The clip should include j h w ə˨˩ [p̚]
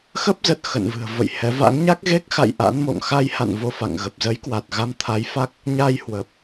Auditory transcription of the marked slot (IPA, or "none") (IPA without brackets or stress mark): p̚